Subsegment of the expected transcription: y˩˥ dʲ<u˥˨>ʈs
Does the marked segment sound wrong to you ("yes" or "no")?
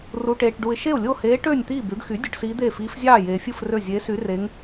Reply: yes